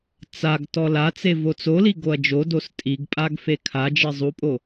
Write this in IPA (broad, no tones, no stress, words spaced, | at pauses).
t͡saɡ tɔlat͡se vot͡soli ɡoɐ̯d͡ʒodos tʼiɡ pʼaɡfekʰad͡ʒi zˤupʼo